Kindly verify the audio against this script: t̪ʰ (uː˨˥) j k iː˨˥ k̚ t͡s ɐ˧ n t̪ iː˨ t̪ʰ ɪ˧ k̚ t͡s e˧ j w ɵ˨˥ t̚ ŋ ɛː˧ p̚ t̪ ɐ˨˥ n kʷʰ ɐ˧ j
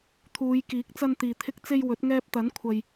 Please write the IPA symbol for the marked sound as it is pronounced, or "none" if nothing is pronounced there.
uː˨˧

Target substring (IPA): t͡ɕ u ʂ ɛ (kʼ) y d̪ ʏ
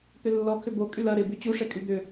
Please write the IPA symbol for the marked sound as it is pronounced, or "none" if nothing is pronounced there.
kʼ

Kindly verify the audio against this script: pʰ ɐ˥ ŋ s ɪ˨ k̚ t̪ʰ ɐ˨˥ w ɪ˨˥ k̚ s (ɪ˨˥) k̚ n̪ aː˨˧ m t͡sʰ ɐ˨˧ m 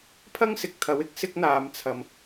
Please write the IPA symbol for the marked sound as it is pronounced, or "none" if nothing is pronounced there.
ɪ˥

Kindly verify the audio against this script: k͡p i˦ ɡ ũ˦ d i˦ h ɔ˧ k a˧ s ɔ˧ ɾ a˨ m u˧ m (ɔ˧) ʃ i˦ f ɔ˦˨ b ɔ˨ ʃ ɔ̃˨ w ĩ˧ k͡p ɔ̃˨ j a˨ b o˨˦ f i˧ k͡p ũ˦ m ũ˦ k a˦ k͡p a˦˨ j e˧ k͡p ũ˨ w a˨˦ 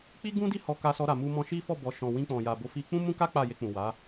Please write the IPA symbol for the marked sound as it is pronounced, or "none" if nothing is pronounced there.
ɔ̃˧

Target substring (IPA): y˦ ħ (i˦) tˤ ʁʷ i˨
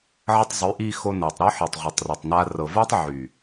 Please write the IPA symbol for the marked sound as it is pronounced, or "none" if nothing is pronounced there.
i˨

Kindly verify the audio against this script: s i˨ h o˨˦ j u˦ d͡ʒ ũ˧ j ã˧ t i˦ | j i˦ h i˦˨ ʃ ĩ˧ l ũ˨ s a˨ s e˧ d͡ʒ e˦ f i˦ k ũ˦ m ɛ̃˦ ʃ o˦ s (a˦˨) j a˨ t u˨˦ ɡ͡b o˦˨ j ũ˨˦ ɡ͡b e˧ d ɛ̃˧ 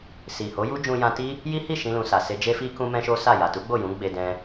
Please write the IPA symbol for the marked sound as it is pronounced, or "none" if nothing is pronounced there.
a˦˨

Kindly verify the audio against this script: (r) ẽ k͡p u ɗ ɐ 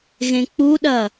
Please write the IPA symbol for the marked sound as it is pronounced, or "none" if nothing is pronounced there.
ɣ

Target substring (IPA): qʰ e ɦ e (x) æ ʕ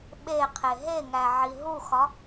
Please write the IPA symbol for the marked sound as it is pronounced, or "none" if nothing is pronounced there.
ŋ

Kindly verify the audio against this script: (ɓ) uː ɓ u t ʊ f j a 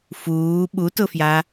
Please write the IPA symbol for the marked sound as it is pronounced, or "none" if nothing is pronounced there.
f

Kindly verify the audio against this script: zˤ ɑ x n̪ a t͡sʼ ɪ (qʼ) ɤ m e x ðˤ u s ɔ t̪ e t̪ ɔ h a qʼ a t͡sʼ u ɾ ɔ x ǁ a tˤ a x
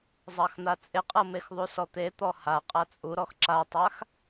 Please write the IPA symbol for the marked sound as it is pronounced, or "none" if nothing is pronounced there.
qʼ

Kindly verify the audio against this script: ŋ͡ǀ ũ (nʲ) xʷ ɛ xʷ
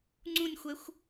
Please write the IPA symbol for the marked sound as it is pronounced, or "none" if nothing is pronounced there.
nʲ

